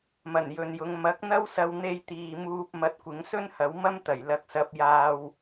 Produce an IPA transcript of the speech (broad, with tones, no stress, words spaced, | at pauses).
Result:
mɐ˨˩njɵ˨njʊ˨˧ŋ mɐ˨˥k̚n̪ɐ˥wsɐ˧w n̪e˧j t̪iː˨muː˧p̚ mɐ˧t̚ kʷɪ˨˧ŋsɵ˥nhɐ˨˧w mɐ˥mt̪ɐ˨˩j lɐ˧k̚sɐ˧p̚jaː˧w